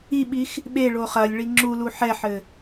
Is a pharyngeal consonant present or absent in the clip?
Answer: present